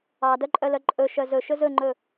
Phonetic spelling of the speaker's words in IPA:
ɑdœǃʼœlœ ǃʼɵʃœ zɵʃɵ zɵŋ͡ǃɵ

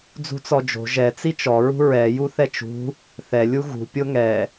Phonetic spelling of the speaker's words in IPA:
d͡zṳt͡sɔd͡ʒo̤ ʒɛ t͡sit͡ʃɔ ɹṳɹɛ juθɛt͡ʃṳ | θɛ lʲuɣṳ pʲoŋɛ

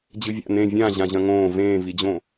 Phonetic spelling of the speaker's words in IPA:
d͡ʑɨvʲa̰ nẽ vʲã ʑãʑɐ̃ŋõː vẽːvid͡ʑõ

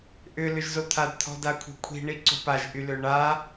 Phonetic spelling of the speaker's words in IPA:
ʔʏ lʏʒzot̪ʰad t̪ʰɔ̤dakʷʰe̤kʷʰi̤ ɳiǀo̤paʒ ʔyløɳa

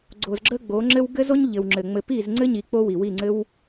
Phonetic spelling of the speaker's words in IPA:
ɡ͡ǀo˨zɡ͡ǁə˦ɡ͡bo˨˦ŋ͡ǁɘ˦w ɡɘ˦zo˦ɲ ʎɘ˨wŋ͡ǁɘ˨ŋ͡mɘ˧ pi˦˨zŋ͡ǀɘ˦ɲi˨ k͡po˦wi˨wi˦˨ŋ͡ǀɘ˦w

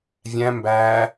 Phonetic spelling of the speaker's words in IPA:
vʲæ̃ mbæː

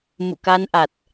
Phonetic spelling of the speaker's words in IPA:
mṵ˧˨ka˧nʔa˨˩t̚

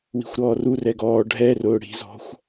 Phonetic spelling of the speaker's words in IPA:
wi̤xʷɾɔːru rɛɡɔː ɖʱɛrʊː ɽi̤zɔ̤xʷ

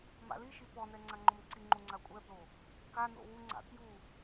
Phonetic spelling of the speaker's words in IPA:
ma̰liʃi pɔnɛ ŋ͡ǀaŋ͡ǃomǀiŋ͡ǃu ŋ͡ǀakʷʼɛblo | kano̰ wuŋ͡ǀa̰ kju

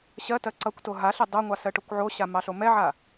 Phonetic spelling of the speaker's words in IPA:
ɕɜtɜ ǀʌkʷto ɦaɬɛ dˤoŋʷɑ sɜʈokʷʕoɕa mɑɬomɛʕa

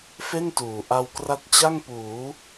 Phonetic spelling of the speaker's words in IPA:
fe˥˩ntuː˨˩ ʔa˧wkra˦˥t̚t͡ɕa˥˩ŋpuː˩˦

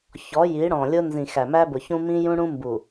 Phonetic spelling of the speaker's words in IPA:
çɔ˨˦ ji˨˦ɽɔ̃˨lʲʊ˦ nzĩ˨xæ˨mæ˦ bʊ˨çũ˦ mĩ˦ jũ˦ ɽũ˦mbu˨

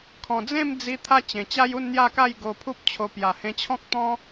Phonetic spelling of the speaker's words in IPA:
kʰɔ̃˨˩d͡zẽ˥˧md͡zi˧ t̪ʰa˦t͡ɕẽ˨˩t͡ɕa˦j u˥˧nn̪ja˥˧ka˥˧j ɡo˧pʰu˦p̚t͡ɕʰo˧ pja˨˩hẽ˧t͡ɕʰɔ̃˦k̚ t̪ɔ̃˦

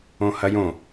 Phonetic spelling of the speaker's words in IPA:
õhɐjõ

